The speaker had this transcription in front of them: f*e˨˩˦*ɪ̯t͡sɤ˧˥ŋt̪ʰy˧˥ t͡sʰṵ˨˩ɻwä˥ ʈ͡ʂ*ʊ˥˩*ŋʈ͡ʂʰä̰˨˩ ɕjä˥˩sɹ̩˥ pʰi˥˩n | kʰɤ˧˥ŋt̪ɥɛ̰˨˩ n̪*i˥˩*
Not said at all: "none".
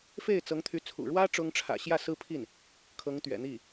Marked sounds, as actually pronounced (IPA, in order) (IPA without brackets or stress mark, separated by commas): e˥˩, ʊ˥, i˥˩